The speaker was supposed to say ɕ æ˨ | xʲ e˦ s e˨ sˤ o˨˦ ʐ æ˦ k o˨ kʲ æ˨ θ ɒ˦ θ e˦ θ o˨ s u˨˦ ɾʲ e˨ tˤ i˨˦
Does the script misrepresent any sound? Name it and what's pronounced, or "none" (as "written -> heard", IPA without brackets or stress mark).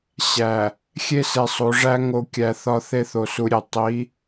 k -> ŋ